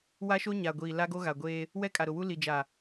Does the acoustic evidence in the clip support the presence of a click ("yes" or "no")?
no